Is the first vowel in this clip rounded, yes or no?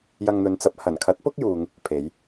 no